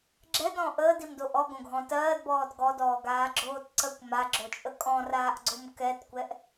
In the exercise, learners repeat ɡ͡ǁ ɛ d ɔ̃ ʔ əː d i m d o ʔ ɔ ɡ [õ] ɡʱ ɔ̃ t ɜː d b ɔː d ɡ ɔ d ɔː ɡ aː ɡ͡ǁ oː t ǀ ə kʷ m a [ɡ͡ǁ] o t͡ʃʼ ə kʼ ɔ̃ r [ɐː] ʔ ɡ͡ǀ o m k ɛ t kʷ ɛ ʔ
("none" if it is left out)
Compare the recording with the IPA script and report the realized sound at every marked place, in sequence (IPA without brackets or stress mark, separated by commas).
õ, ɡ͡ǁ, aː